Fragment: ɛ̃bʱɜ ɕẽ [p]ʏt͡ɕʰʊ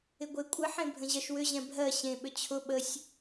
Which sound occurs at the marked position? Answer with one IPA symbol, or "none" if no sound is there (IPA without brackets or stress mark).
ɓ